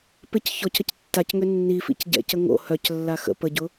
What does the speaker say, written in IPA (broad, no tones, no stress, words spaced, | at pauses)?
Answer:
pɪc çɔcəc tːacŋø nːifḭc ɟɛ̰cə ŋo̰ hœclːa xə̰ pəɟʊ